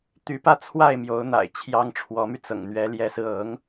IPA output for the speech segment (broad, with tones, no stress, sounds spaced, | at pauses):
t̪ y˧˥ p ä˥˧ t͡sʰ w a˥˩ ɪ̯ m j o˧˥ ʊ̯ n̪ a̰˨˩ ɪ̯ t͡ɕʰ j ɑ˥ ŋ ʈ͡ʂʰ w ɔ˧˥ m y˧ t͡s ɤ̰˨˩ ŋ n̪ ɥ ɛ˧˥ l j ɛ˧˥ s ɹ̩˧ ɤ˧˥ ŋ